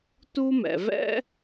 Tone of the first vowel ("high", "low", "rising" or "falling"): high